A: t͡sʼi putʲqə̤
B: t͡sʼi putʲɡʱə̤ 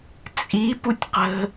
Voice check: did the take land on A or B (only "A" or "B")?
A